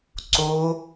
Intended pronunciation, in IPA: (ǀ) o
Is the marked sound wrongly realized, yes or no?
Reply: no